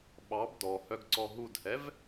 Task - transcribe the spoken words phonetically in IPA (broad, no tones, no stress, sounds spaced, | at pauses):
ɓ ɑ b d ɔ h œ ɡ ǀ ɔ ɦ u d h ɛ v